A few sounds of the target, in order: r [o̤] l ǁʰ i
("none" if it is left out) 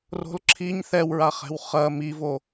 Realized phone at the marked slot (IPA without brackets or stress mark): o̤